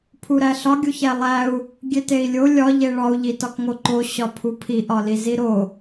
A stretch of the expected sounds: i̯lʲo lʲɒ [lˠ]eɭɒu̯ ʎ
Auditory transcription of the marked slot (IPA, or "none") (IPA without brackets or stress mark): ʎ